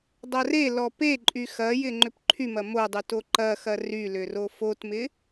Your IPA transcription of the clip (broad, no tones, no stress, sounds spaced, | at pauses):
dˤ ɐ r e l ɔ p e ǃʼ y x ɐ j ɪ ŋ͡ǃ ʏ p ǃʰ y m ɐ m o dˤ y t o ǃ ɐ x ɐ r y l ʏ r o f o t m ɪ